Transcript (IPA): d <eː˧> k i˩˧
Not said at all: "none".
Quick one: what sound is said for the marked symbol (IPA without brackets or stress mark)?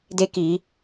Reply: e˧